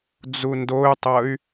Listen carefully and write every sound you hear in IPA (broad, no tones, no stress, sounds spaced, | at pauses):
d͡z u n d o y̯ tˤ ɤ y̯